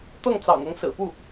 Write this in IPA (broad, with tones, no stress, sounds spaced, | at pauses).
t̪ ɤ˥˩ ŋ t͡s ɑ̰˨˩ ŋ ɤ˧˥ ŋ s ɹ̩˨˩ p u˥˩